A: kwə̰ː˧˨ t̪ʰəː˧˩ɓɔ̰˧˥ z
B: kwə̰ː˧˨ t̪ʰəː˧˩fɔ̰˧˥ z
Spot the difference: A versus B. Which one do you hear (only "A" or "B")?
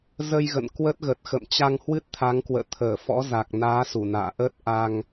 B